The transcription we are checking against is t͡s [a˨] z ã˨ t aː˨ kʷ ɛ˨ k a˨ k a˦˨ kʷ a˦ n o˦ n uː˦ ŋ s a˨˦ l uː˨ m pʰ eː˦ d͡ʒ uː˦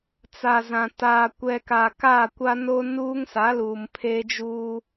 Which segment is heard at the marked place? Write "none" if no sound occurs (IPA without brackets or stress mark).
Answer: a˨